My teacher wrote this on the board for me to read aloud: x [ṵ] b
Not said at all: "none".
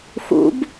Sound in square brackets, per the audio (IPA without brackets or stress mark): ṵ